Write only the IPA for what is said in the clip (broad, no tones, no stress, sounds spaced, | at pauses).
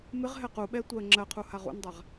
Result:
m ɪ ʁ ɦ ɛ q u ɓ ɛ tʷ ɜ ŋ͡ǁ ɜ qʰ u h a ʁ ṵ n dˤ a ʁ